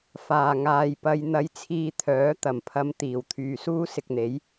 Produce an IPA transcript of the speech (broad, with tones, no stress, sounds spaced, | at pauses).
f aː˨˩ ŋ aː˨ j p ɐ˧ j n̪ ɐ˧ j t͡sʰ iː˧ t̪ʰ œː˨˥ t̪ ɐ˨˩ m pʰ ɐ˧ m t̪ iː˨˩ w t̪ʰ yː˨ s uː˥ s ɪ˧ k̚ n̪ e˨˥ j